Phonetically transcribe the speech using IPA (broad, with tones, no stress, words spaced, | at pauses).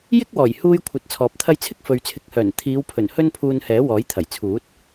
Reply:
jɪ˥k̚ wɔː˨˩jhuː˧jkʷʰɐ˨t̚ t͡sʰɔː˨p̚t̪ʰɐ˥j t͡sʰɪ˥k̚fɵ˨ɥt͡sʰɪ˨k̚hœː˨˩n t̪ʰiː˨˧wpʰɵ˨˩n hɵ˥npʰuː˧nhɛː˨˥ wɔː˨˥jt̪ʰɐ˨˩jt͡sʰuː˨˥t̚